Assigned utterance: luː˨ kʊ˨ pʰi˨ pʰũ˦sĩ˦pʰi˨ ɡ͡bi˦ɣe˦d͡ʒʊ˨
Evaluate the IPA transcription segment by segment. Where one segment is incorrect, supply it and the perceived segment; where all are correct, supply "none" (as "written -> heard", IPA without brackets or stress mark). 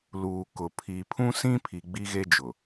none